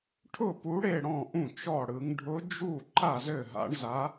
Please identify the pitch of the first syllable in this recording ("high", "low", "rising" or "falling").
falling